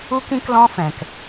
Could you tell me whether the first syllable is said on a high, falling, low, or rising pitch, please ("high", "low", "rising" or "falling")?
high